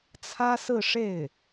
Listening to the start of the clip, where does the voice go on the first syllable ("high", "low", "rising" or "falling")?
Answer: high